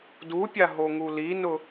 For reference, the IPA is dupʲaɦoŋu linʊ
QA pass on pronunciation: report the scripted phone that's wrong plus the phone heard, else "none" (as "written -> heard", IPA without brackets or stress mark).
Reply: none